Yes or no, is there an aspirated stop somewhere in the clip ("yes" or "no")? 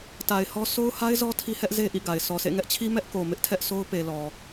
yes